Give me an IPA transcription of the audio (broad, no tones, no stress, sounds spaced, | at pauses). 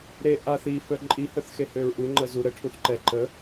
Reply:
ɾ e ʔ a θ i f œ ǃʼ i h œ θ x e h ø ɹ ʔ u ŋ͡ǃ ə z u ɾ ə ʈʰ u θ ǃ ɛ ǃ ə